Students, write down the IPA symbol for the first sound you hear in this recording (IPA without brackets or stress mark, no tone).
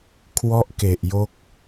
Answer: kʰ